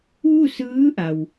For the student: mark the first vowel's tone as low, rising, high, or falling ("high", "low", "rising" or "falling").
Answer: falling